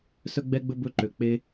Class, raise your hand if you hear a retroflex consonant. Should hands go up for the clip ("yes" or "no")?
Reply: no